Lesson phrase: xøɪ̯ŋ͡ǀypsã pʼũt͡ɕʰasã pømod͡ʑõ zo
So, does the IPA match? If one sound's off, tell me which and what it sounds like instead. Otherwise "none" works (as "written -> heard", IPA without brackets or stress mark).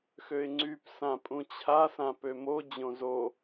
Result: none